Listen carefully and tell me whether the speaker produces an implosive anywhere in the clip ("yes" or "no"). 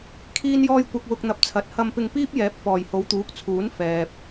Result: no